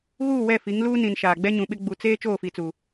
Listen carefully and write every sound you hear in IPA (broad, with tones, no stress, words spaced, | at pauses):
ɣuː˦˨wɛ˦˨fi˨˦ŋ luː˦nĩ˨n ʃaː˨ɡ͡bɛ˦ɲũ˨ɓɪ˦ ɡ͡bu˨ t͡seː˦ t͡ʃoː˦˨fi˨t͡su˨